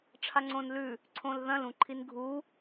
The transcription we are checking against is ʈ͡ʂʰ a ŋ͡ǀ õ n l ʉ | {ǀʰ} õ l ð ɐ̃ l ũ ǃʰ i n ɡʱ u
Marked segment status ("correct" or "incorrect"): correct